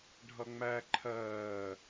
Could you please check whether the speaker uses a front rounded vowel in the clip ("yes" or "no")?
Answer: no